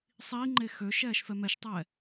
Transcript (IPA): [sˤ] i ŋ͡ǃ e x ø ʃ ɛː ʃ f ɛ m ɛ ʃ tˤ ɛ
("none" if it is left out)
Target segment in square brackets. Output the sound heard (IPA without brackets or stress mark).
sˤ